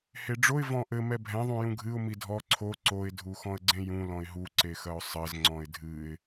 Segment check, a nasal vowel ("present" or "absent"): present